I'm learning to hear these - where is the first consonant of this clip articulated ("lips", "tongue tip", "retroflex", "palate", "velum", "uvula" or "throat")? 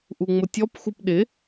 throat